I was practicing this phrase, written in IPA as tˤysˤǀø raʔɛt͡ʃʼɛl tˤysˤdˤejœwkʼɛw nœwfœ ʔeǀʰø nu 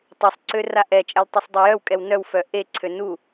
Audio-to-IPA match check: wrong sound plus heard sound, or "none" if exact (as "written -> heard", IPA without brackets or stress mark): none